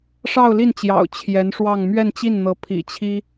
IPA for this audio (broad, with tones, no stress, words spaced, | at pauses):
ʂɑ˥˧ʊ̯li˥˩nt͡ɕjɑ̰˨˩ʊ̯ t͡ɕʰjɛ˧˥nʂwɑ˥˧ŋ mɥɛ˥˧nt͡ɕi˥˩nn̪ɤ˧˥ pʰḭ˨˩t͡ɕʰi˥